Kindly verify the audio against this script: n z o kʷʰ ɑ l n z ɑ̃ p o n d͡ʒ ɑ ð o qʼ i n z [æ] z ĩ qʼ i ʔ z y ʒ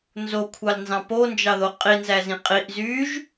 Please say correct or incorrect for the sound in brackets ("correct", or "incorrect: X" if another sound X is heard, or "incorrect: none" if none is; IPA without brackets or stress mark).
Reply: correct